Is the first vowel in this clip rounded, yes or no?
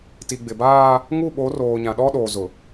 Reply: no